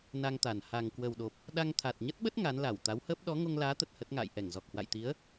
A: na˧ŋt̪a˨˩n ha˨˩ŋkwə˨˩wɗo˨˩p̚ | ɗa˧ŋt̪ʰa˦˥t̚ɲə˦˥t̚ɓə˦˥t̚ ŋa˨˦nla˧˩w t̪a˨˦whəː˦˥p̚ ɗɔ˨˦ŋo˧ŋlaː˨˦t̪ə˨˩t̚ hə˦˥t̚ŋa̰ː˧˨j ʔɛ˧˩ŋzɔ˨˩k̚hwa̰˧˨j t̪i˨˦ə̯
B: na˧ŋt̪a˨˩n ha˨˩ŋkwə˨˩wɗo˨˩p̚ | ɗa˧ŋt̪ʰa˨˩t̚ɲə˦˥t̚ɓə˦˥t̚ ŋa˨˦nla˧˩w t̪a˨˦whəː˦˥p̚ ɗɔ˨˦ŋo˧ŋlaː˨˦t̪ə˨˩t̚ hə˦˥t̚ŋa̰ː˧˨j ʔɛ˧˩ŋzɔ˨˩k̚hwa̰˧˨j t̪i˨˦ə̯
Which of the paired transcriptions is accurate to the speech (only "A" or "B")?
B